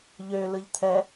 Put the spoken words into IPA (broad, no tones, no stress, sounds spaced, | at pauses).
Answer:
ʎ ø l ɯ ʎ t̪ʰ ɛ